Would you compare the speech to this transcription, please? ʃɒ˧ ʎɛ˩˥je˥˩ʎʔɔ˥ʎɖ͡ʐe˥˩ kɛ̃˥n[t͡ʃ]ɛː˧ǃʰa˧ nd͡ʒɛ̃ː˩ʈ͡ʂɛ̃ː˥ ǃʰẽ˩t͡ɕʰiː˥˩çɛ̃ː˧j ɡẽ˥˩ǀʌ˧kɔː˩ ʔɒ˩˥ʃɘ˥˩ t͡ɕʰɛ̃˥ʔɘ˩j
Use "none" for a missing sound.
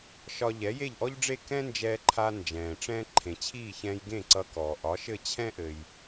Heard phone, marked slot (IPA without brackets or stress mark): d͡ʒ